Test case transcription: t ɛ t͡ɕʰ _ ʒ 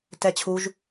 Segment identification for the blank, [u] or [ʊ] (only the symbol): u